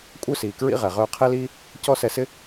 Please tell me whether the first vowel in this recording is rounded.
yes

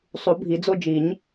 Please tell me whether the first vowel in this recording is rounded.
yes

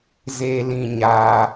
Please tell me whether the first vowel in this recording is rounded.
no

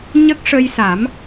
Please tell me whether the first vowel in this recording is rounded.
no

